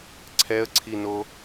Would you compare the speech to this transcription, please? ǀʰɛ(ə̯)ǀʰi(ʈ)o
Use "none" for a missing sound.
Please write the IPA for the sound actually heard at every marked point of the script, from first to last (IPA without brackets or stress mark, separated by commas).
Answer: ə̯, n